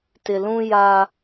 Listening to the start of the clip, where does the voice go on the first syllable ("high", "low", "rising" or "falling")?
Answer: low